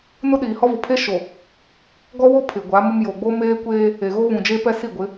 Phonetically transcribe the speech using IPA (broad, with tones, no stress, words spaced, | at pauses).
nʊ˦ɗiː˨hɔ˦vʊ˨ pʰe˦ʃo˨ | ɡɔ˦wo˦ pʰɪ˨ɡʷa˨˦mʊ˦m jo˨ɡ͡bo˦ meː˦kʷeː˦ | e˨ɣo˦ βũ˨d͡ʒe˦pɛ˦ si˦˨ɡʷɪ˨˦